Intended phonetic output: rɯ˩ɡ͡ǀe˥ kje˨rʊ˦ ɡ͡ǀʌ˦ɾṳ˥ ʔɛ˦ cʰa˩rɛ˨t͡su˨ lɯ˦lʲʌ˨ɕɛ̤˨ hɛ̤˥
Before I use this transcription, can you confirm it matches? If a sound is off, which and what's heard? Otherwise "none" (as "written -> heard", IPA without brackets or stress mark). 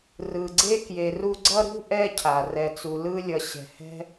ʊ˦ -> u˦